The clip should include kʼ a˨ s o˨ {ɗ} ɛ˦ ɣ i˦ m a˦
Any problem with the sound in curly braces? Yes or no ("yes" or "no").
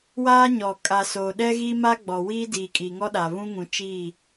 no